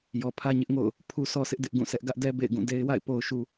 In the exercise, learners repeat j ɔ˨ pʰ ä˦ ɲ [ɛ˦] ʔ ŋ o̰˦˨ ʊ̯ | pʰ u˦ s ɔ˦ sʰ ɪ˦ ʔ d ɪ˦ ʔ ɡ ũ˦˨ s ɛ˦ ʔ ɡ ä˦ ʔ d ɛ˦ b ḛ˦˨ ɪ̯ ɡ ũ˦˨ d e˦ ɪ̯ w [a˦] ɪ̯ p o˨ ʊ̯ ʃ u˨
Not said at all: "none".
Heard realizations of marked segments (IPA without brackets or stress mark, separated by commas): ɪ˦, a̰˦˨